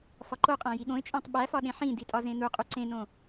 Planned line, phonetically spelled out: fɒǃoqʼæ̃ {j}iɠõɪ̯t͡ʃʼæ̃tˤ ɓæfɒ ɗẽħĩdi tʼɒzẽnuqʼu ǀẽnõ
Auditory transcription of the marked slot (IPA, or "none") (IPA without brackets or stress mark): j